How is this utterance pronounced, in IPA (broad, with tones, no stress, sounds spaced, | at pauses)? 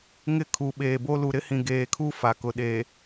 ŋ ɪ˦ kʰ u˨ ɓ eː˨ b o˦ l u˨ ɾ ɪ˦ h ĩ˨ ɡ eː˨ kʰ u˦ f a˨ k ʊ˨ ɗ e˨